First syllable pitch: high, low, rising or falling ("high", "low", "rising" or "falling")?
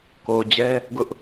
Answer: low